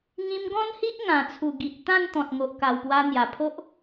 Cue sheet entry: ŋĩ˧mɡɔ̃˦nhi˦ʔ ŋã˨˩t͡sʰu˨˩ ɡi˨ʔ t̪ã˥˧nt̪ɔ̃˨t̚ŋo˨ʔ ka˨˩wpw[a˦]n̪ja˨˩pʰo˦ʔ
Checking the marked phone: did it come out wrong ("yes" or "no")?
yes